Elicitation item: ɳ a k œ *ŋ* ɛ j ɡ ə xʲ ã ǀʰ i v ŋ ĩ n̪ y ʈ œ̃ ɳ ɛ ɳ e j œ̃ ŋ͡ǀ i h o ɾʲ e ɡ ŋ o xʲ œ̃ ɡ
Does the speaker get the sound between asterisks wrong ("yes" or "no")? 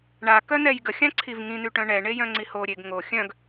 yes